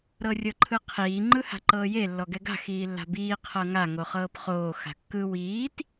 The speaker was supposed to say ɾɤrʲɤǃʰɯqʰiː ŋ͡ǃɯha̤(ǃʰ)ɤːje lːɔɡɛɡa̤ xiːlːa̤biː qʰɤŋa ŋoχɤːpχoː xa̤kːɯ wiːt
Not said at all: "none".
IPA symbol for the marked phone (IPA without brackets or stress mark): ǃ